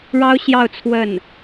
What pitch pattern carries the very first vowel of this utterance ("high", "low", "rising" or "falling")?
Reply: high